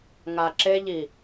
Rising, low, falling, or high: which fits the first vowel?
low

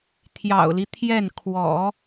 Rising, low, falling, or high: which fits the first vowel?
low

